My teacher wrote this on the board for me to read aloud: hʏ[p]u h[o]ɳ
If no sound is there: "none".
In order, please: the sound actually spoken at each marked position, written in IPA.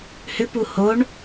p, o

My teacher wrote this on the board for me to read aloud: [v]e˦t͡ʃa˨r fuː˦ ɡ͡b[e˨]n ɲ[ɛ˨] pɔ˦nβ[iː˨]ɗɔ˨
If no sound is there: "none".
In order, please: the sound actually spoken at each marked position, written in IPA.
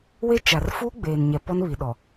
w, eː˨, ɛ˨, i˨

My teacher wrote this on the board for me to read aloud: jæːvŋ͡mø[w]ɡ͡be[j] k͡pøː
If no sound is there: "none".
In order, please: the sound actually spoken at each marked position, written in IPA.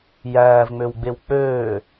w, w

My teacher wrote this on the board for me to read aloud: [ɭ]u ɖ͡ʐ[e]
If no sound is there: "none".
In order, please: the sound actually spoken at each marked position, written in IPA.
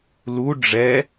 l, ɛ

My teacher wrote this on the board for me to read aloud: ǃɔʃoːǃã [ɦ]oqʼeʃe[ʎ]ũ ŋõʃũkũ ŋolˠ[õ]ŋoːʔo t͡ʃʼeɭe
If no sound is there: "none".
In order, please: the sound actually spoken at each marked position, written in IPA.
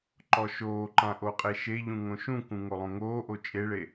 ʔ, ʎ, õ

